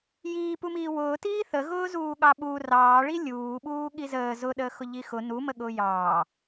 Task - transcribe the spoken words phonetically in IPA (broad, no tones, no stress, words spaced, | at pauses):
jiːpumiː wʊːtiː θəɣʊːzuː ɠɑɓu rɑːɭi lʲuːɓuː ɠizəː zʊɗəː xʊʎixʊ numəɠʊː jɑː